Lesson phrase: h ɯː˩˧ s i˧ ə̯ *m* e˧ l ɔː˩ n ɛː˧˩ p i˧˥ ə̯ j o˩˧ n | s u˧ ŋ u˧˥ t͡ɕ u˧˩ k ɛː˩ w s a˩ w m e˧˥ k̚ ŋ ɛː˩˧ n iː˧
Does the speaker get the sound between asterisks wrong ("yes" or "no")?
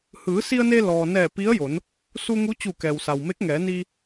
yes